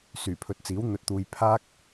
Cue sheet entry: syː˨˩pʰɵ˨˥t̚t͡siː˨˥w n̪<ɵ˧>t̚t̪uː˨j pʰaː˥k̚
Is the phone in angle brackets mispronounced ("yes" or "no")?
yes